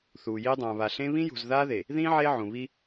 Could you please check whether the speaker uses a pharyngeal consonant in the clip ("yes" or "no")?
yes